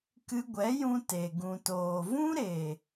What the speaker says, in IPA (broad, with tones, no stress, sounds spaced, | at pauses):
k ɨ˧ ɡʷ ɛ˨˦ j ũ˧ t e˨ ɡ ũ˨ t oː˨ v ũ˦ ɾ e˨